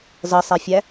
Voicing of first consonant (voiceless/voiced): voiced